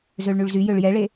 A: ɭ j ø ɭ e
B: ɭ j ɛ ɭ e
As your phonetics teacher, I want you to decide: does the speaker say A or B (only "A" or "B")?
B